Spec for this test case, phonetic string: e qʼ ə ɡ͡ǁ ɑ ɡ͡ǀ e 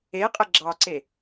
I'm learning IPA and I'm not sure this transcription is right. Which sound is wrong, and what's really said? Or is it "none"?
ɡ͡ǀ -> ǀ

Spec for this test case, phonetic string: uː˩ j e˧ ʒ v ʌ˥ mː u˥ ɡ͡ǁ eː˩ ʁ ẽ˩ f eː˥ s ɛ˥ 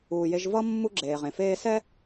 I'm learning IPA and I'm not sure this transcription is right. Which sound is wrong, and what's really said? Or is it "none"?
none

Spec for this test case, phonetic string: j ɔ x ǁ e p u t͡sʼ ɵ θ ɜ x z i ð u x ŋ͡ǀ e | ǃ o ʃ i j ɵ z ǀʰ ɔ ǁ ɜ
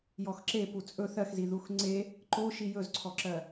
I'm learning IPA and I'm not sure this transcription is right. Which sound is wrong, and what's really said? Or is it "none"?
none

